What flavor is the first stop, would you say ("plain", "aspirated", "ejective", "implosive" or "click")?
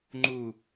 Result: click